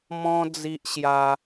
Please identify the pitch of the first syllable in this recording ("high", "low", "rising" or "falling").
high